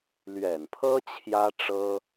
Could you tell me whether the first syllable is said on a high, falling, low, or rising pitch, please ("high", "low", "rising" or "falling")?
low